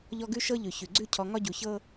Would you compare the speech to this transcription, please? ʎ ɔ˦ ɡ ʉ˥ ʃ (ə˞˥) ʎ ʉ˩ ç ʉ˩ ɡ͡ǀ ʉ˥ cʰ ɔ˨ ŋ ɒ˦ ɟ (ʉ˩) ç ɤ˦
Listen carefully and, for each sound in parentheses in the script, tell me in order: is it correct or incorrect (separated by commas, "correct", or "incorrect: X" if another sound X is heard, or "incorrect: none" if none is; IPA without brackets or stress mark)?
incorrect: ɤ˥, incorrect: u˩